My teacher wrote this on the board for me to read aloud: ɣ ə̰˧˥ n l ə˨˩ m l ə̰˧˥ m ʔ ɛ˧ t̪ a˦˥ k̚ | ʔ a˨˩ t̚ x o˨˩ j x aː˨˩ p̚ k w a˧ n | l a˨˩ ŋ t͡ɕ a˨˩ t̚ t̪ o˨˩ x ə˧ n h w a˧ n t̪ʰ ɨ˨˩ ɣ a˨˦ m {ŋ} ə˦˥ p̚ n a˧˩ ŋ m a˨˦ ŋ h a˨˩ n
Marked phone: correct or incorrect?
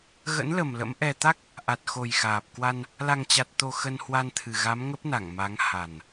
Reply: correct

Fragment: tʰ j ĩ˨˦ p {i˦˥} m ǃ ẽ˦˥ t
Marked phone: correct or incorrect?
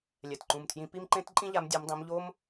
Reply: correct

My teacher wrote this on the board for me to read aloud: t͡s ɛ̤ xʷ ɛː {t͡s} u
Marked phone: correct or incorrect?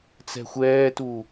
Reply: incorrect: t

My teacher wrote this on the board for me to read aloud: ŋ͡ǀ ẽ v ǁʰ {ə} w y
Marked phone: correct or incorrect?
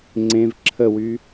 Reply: correct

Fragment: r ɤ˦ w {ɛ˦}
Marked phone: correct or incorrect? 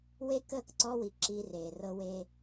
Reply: incorrect: e˦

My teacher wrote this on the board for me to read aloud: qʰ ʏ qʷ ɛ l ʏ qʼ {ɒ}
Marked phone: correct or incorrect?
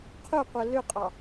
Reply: incorrect: ɑ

